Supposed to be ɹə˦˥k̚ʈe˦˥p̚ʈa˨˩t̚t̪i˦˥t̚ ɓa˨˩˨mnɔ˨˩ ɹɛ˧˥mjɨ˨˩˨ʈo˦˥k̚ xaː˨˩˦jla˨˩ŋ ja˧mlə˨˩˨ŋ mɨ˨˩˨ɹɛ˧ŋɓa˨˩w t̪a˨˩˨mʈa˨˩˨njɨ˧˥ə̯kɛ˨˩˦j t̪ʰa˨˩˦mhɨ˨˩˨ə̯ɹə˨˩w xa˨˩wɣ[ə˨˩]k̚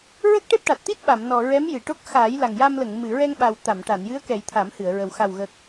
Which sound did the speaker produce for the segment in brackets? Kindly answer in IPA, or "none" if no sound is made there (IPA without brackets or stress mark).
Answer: ə˨˩